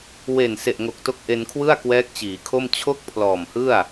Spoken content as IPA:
w e˨˩ n s e˨˩ ʔ ŋ o˨˩ k̚ t o˦˥ k̚ ʔ e˧ n kʰ w ɯ˥˩ a̯ k w ɛː˦˥ k̚ t͡ɕ iː˩˦ kʰ o˥˩ m t͡ɕʰ o˥˩ k̚ pʰ l ɔː˨˩ m h ɯ˥˩ a̯

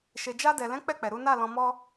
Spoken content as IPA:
ʃ e˨ d͡ʒ a˧ d ɛ˨ l ɛ̃˨˦ k͡p ɛ˦˨ k͡p ɛ˨ ɾ u˨˦ n a˦˨ l ɔ̃˧ m ɔ˦

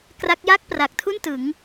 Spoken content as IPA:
k r a˦˥ k̚ j a˥˩ k̚ p r a˨˩ k̚ tʰ u˥˩ n t ɯ˩˦ ŋ

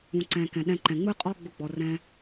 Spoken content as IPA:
ũ˨ ǀ ɛ̃˨ k ɛ̃˨ ɗ ɛ̃˧ ǃ ɛ̃˨ ŋ͡m ɯ˦ qʼ ɔ˦ ɡ͡b ʊ˧ ɡ͡b ɔ˨ r ɛ̃˦

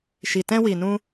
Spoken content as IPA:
ʃ i˨ t ɛ̃˧ w i˨ n ũ˧

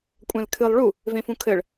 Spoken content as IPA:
kʷʼ ɛ̃ l kʰ ɨ lˠ ɭ u | v ẽ f ũ kʰ ɘ ɭ

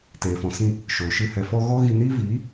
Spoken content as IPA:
t eː˨ f ɔ̃˨ s ĩ˧ | ʃ oː˨ ʃ ɨ˧ h ɛ˨ f ɔ˧ ɣ ɔ˦ ɣ i˧ n iː˦ v iː˨˦

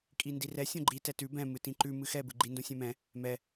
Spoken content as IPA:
kʼ i n d i r ɛ sʲ õ ɡ͡ǃ i t ɛ t ʉ b ɛ̃ m ɨ t ĩ ǃ ʉ m ɨ x ɛ b ɨ ɡ͡ǃ i n d õ sʲ ɛ̃ m ɛ̃ | m ɛ

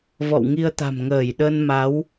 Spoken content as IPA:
v ɔ̰˧˨ w ŋ i˧ ə̯ t̪ a̤˨˩ m ŋ əː˧˩ j ɗ ə˧ n m a˨˦ w

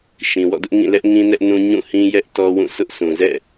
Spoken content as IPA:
ʃ ĩ˨ w ɔ̰˦˨ d ʊ˦ ʔ ŋ ĩ˦˨ l ɛ˦ ʔ ŋ ĩ˦ n ɛ˦ ʔ n ũ˦ ɲ ũ˦˨ h ĩ˦ j ɛ˦ ʔ t ɔ˦ w ũ˦˨ s ʊ˦ ʔ sʰ ũ˨ z ɛ̰˦˨

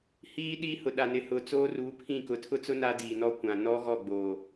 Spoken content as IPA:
h iː˦ ɗ iː˦ h ʊ˨ ɗ a˨ n ɪ˨ h ʊ˨ t͡s oː˦ r uː˨˦ pʰ ĩ˦˨ k ʊ˨ tʰ ʊ˦ t͡s ʊ˦ n a˦ d iː˨ n ɔ˦˨ kʷ ã˨ n ɔ˦ ɣ ɔ˦˨ ɡ͡b oː˨

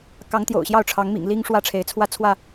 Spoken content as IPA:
k ɑ˨˦ ŋ t̪ j o̰˨˩ ʊ̯ ɕ j ɑ˥˨ ʊ̯ ʈ͡ʂʰ ɑ˨˦ ŋ m ḭ˨˩ ŋ l i˦ ŋ ʂ w ä˥˨ ʈ͡ʂʰ e˨˦ ɪ̯ t͡sʰ w ä˥˨ t͡sʰ w ä˥˨

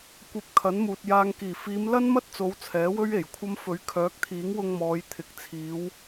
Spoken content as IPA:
kʷ ɐ˨ p̚ kʰ ɐ˨˥ n m uː˨ t̚ j aː˨ ŋ k iː˨˩ f iː˨˧ m l ɐ˥ n m ɐ˥ t̚ t͡s o˨˧ w t͡sʰ ɛː˨˥ w ɵ˥ ɥ e˨˩ j kʷʰ ɐ˥ m f ɵ˨˥ ɥ kʰ œː˨˥ k̚ t̪ʰ iː˨˥ ŋ w ʊ˧ ŋ m ɔː˨˧ j t̪ʰ ɪ˨˥ k̚ t͡sʰ iː˨˧ w

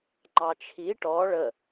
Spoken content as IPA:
ŋ͡ǃ ɑ t͡ʃʰ i ʈ ɔ ɭ ə

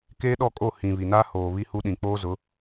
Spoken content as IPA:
k eː˦ ɗ ɔ˦˨ kʼ o˦˨ h ĩ˨ β i˨ n aː˦ h oː˨ β i˦ h u˦ ɗ ĩ˨ k͡p oː˦ z ʊ˨˦

